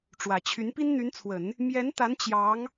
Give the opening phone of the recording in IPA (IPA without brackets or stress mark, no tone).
ʈ͡ʂ